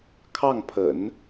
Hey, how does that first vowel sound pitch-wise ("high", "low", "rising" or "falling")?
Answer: falling